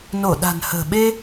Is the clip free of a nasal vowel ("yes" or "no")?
yes